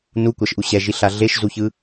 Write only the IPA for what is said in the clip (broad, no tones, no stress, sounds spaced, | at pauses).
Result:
n u kʷ a ʃ ʔ u ɕ ɛ ʒ i ɬ a ɮ e ʃ z u ç ɯ